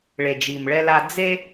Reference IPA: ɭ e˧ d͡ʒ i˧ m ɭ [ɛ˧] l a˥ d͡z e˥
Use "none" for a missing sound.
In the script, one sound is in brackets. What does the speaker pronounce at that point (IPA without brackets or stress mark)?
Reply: ɛ˥